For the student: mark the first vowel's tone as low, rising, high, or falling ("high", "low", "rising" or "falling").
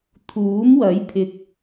rising